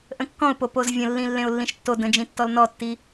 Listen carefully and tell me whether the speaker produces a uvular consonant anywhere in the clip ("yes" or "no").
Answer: no